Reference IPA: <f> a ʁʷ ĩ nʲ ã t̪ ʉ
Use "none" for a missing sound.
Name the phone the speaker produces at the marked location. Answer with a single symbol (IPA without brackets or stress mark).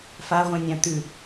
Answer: f